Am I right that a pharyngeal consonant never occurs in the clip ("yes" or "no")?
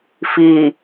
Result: yes